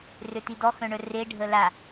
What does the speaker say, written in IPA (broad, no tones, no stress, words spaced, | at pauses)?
røtidɔ xœ̃ɳœre ɖʱəla